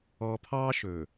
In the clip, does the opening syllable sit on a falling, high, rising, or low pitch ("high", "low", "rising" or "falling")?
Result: low